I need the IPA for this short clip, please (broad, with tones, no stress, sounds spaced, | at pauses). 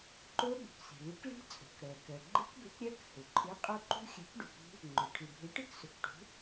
ǃ o˦˥ ɓ ṳ˩ k s i̤˩ ɭ i˨˥ k ɭ i̤˦˥ t͡sʼ o̤˩ k ɽ ɜ˩ k ɜ˩ ɡ͡ǃ ɯ˦˥ k b ø˨˥ k ɾʲ ɜ˦˥ k h ɵ˩ ǃʼ ɯ˨˥ qʼ o˦˥ ǃ ṳ˦˥ xʲ ø˨˥ k ɖ u˩ k ṳ˦˥ | ŋ͡ǃ ɵ˩ ʈʰ ɯ˩ bʱ ø˨˥ ʈ ɯ˦˥ k s ɵ˩ k ʈ ṳ˨˥